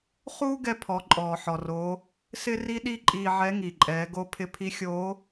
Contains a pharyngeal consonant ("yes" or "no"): yes